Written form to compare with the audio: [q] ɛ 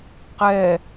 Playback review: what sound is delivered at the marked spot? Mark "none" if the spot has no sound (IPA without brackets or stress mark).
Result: q